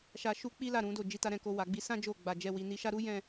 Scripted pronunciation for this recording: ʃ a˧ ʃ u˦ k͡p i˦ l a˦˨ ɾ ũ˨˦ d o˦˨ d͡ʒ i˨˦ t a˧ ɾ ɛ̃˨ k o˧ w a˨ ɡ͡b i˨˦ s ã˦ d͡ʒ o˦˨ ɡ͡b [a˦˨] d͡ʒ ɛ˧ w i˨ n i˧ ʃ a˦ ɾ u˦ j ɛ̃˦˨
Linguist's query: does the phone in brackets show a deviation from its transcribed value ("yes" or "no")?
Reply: yes